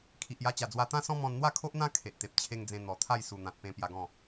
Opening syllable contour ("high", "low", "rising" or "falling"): low